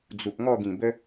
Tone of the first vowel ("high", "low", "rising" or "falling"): low